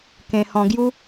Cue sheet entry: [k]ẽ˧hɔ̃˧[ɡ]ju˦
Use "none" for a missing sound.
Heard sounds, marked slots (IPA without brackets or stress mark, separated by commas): k, ɡ